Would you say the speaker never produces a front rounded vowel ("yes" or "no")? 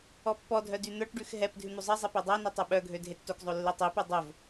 no